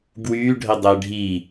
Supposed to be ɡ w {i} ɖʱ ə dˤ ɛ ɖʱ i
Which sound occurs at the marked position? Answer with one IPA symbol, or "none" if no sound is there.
y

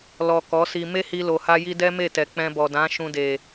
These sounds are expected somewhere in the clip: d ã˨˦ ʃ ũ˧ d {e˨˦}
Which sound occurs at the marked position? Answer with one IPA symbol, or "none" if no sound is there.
e˨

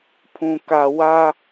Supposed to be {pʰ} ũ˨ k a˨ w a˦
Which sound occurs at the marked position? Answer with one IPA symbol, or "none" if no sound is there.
pʰ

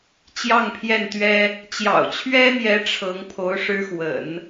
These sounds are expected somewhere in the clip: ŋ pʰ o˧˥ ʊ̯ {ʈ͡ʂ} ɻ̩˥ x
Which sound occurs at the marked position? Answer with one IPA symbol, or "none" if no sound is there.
ʂ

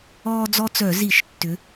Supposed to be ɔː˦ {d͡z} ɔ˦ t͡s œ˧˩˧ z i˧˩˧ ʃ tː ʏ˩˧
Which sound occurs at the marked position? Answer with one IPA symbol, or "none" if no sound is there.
d͡z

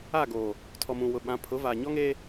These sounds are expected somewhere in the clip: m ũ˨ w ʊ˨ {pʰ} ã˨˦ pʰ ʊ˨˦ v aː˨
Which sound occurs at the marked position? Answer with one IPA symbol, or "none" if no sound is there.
ɓ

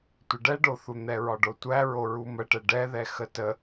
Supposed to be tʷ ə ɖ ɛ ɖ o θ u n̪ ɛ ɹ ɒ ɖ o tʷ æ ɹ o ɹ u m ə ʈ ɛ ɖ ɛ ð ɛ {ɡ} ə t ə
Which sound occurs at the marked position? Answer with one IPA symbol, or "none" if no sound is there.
x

